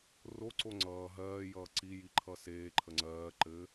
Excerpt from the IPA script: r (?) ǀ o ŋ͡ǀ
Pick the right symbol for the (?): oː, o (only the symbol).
o